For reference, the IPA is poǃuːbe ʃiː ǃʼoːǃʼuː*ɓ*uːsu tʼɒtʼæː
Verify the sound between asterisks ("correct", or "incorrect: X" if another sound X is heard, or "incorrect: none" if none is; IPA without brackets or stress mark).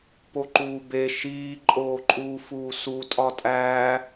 incorrect: f